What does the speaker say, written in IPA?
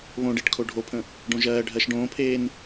β õ ɖ e ʈ kʰ o ɖʱ o pʰ ə̃ | ɖ õ ʒ ɜː ɖʱ ɜ ʃ ɖ õː pʰ eː n

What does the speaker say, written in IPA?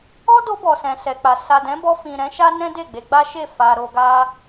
ɔ˦ d o˧ b ɔ˨ s ɛ̃˨ s ɛ˨ k͡p a˨ s a˨ d ɛ̃˨˦ b ɔ˧ f ĩ˨ ɾ ɛ̃˨˦ ʃ a˦ n ɛ̃˦ d e˦˨ ɡ͡b e˧ ɡ͡b a˦ ʃ e˦˨ f a˧ ɾ o˧ ɡ a˦

